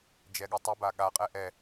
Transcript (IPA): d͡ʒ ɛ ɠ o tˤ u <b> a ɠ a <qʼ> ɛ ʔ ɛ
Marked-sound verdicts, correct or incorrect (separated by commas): correct, correct